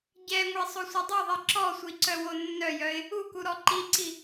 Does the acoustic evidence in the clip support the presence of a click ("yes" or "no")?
yes